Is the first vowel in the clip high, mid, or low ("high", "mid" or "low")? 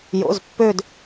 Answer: mid